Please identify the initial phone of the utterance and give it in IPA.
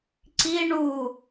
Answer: ǀ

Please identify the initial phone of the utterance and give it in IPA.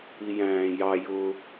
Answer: i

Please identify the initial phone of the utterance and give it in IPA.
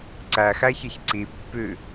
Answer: ǀ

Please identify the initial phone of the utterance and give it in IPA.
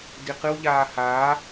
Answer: d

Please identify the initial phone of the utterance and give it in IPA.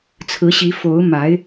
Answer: t͡sʰ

